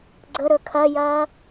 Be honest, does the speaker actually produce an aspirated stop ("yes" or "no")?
yes